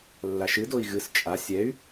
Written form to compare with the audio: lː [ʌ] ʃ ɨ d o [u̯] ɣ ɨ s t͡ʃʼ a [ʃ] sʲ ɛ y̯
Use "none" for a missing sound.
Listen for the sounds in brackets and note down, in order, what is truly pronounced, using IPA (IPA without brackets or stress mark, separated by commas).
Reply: a, i̯, none